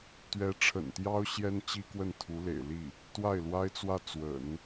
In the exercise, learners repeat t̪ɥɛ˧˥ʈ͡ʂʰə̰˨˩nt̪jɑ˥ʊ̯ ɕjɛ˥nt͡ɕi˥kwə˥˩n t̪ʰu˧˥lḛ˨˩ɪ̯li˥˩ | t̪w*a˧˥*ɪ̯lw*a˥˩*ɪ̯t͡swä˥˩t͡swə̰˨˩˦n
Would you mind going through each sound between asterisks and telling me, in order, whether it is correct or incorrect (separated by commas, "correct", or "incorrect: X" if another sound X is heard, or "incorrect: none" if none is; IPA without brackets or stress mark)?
incorrect: a˥˩, incorrect: a˥